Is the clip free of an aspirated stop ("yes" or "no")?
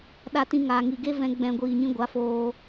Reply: yes